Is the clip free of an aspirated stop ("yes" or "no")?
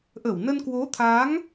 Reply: no